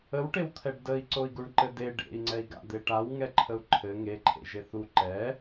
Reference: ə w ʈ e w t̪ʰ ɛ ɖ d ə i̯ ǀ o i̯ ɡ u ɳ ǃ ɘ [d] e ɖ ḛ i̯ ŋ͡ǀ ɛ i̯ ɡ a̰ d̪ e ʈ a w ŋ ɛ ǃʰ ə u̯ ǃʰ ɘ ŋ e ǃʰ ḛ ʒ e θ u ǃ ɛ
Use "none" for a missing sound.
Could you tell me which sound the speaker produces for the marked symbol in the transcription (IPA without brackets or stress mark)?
d